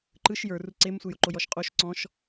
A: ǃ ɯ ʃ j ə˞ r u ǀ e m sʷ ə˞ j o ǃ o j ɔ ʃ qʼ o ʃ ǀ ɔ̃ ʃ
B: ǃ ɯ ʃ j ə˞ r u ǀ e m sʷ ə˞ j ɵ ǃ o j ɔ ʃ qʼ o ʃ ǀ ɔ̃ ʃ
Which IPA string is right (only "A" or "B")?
A